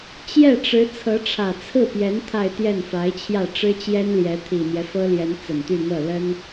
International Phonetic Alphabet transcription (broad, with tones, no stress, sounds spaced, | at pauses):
t͡ɕ j ɛ˥˩ ʈ͡ʂ ɻ̩˧˥ t͡sʰ ɤ˧˥ ʈ͡ʂʰ ä˨˩ t͡sʰ ɹ̩˥˩ p j ɛ˧˥ n t̪ʰ a˥˧ ɪ̯ t̪ j ɛ˥˩ n f a˧˥ ɪ̯ t͡ɕʰ j ä˥˩ ʈ͡ʂ ɻ̩˥ t͡ɕ j ɛ˥ n l j ɛ˧˥ t̪ʰ i˨˩ n̪ j ɛ˦ f ɤ˥ l j ɛ˧˥ n t͡s ə˨˩ n t̪ y˥˧ n̪ ɤ˥˩ l ə˥ n